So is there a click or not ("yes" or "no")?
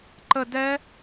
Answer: yes